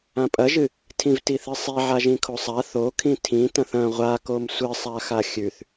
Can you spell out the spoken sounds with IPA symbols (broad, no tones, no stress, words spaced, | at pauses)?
ãpʼɐʒɨ | tʰĩvtiθɨsˤi ʕaʒĩkʰosˤa θokʰĩ tʰĩ tɐ̃θɐ̃ ʁʷakom sʷɨ sˤaxaxʲʉθ